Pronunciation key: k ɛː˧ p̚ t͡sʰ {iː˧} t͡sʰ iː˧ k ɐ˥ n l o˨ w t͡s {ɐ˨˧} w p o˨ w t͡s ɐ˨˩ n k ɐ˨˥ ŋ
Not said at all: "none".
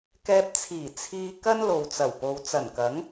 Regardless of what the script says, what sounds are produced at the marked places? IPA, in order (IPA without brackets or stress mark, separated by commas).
iː˨˩, ɐ˨˩